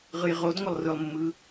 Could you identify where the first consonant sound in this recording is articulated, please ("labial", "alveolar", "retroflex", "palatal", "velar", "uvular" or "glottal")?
uvular